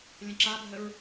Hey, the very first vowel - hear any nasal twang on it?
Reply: yes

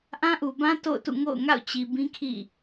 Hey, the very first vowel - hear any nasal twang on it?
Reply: yes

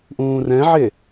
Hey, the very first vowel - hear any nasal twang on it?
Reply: yes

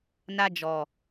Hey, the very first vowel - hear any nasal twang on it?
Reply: no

